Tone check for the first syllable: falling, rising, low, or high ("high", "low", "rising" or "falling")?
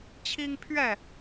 high